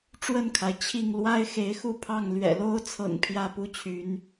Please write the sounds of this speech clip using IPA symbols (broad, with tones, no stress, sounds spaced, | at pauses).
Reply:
ʈ͡ʂ w ə˥˨ n kʰ a˩ ɪ̯ t͡ɕʰ i˥˨ ŋ l w a˦ ɪ̯ x e˨˦ ɪ̯ x u˥˨ pʰ ɑ˥˨ ŋ l ɥ ɛ̰˨˩ l o˦ ʊ̯ t͡sʰ ɤ̰˨˩ ŋ pʰ j ä˥˨ p u˦ t͡ɕʰ y˨˦ n